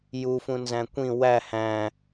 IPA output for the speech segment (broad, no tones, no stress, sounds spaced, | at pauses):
j u f ũ n z æ̃ kʷ ĩ w æ h æ̃